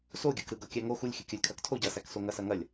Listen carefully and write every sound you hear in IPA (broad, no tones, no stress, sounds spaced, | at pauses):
s o ɡʲ ɯ k ɾ ɯ ɡ ɤ kʲ æ ŋ o x u lʲ xʲ ɯ kʲ ɐ lʲ kʰ ɐ k tʰ o ɟ ɐ s æ k s o ŋ ɐ s ɐ ŋ ɐ lʲ